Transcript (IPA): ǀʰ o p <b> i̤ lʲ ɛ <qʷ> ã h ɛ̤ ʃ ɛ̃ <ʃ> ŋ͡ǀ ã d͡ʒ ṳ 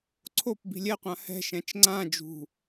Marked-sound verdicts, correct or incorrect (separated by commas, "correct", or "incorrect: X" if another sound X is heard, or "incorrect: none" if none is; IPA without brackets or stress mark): correct, correct, incorrect: t͡ʃ